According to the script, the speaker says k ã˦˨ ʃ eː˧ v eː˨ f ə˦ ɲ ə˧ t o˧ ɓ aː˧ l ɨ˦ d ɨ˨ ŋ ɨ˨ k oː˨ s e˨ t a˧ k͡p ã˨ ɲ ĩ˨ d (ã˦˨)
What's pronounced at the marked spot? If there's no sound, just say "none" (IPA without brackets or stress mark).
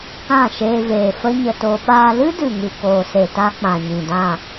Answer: ã˦˨